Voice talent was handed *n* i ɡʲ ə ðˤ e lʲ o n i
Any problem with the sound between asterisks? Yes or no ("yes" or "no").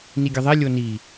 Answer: no